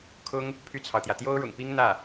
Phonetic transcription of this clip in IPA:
kʰʊ˥ŋ | pʰy˥˩t͡sʰɑ˩ʊ̯t̪jä˩ t̪jo˥ʊ̯ɻʊ̰˨˩ŋpi˥ŋ n̪ä˥˩

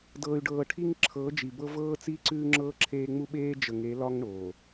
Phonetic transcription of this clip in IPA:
dɤː˨y̯ɖɤː˨ʈʰi˦ŋ ǁʰɤː˨˦d͡ʒi˨bɤ˦ vɤː˦t͡siː˦ǀʉː˦ ŋ͡ǁɤː˦ǁʰeː˦ŋ͡mu˦ ɓeː˦d͡ʒə˨ŋe˨˦lɒ˦ŋ ɳoː˨

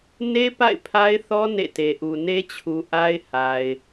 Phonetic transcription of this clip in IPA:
ne˦ pa̰˦˨ɪ̯pʰa˦ɪ̯θɔ˦ nḛ˦˨te˨ʔu˨ ne˦t͡ɕʰu˨ ʔa˦ɪ̯ha˨ɪ̯

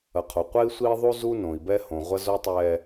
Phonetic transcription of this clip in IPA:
ɐ˨qʰo˨qʷɛ˦i̯sʷiː˦ ðˤu˦zu˦nõ˨i̯ bɛ˦hõ˨ ʁʷɐ˦zo˦tˤɛː˦

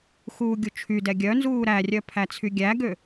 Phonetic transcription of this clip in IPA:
xuːɡʲut͡ʃʰydɛ ɡʲœnzuː ɾærʲœ pʰæt͡sʰyɡʲæɡø

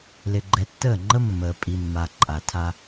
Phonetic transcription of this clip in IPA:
lɪ˨ɡ͡ǃɛ˨tːəː˦˨ŋ͡ǃə˦ mːəː˨ pʼi˨mːa˨ ǃʼa˨tʰa˦

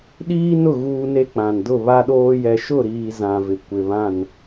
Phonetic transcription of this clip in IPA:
ɗiː˦nʊ˦˨ ɣuː˦ne˦k͡pã˨n dʊ˦˨βa˦ɗoː˦ jɛ˨ʃʊ˦˨ɾiː˨ zã˨vɪ˨ kʷɪ˨βã˦˨n

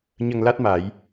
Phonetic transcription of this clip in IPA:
ɲə˧ŋla˦˥t̚ma˨˩˦j

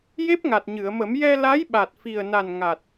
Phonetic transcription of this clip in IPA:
je˦˥p̚ŋa˨˩t̚ɲɨ˨˩˨ə̯mə˨˩˦m jɛ˧ la˧˥jɓa˨˩t̚ fi˨˩ə̯na˨˩n ŋa˨˩t̚

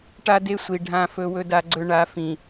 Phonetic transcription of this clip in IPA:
ʈa˦de˦sʷi˨ ɖʱã˦fɵ˦ wɵ˦da˦ɡ͡ǀɵ˦ ɳa˨˦fĩ˨

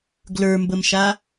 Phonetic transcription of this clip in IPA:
ɡlə˞mbəmʃa

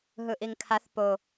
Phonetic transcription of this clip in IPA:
ɦɯʔiŋkʰaθ po

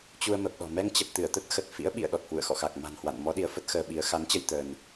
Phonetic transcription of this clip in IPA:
t͡ɕu˧ə̯mə˨˩p̚ɗɔ̤˨˩ mɛ˧ŋt͡ɕə˨˩p̚ t̪ɨ˧˩ə̯t̪ə˦˥t̚xə˨˩t̚ fḭ˧˥ə̯ɓḭ˧˨ə̯ ɗɔ˨˩t̚hwṵ˧˨ə̯xɔ̰˧˨xa˨˩k̚ ma̤˨˩nhwa̰˧˨n mɔ˨˦ ɗi˨˦ə̯fə˦˥t̚ xəː˧ɓi˨˦ə̯ xa˨˦nt͡ɕə˧j t̪əː˧n

